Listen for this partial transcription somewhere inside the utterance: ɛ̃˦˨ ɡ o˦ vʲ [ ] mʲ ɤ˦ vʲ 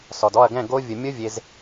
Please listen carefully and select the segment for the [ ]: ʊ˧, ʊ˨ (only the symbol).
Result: ʊ˧